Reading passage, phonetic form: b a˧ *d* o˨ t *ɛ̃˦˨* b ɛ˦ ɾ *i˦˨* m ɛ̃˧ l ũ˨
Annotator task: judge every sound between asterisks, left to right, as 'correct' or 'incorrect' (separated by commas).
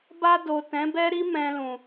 correct, incorrect, incorrect